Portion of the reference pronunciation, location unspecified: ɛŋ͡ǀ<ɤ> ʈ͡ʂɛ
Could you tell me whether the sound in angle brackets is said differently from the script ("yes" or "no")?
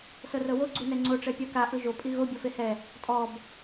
yes